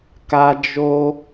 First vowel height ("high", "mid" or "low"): low